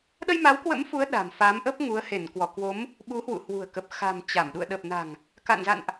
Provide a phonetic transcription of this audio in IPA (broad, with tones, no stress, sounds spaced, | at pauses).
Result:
ɗ ə˧ j m a˨˦ w k w ə̰˧˥ m f u˨˦ ə̯ ɗ a̤˨˩ m f a˨˦ m ʔ ə˦˥ p̚ ŋ u˨˦ ə̯ h e˧˩ n k w ɔ˧˩ k w o˨˦ m | ɓ u˨˦ h w ṵ˧˨ h w ṳ˨˩ ə̯ k ə˨˩ p̚ x a̤˨˩ m t͡ɕ a˧˩ m ɗ ṵ˧˨ ə̯ ɗ ə˨˩ p̚ n a̤˨˩ ŋ | k a̰˧˨ n z a̰˧˨ n ʔ